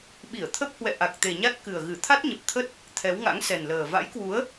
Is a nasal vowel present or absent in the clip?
absent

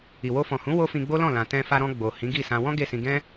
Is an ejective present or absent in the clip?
absent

